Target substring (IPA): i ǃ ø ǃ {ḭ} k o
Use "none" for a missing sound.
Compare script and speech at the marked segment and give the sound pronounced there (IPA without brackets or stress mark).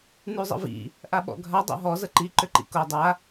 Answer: ḭ